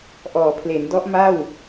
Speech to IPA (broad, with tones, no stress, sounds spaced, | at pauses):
ʔ ɔː˩˦ pʰ l e˩˦ n d ɔ˦˥ ʔ m a˥˩ w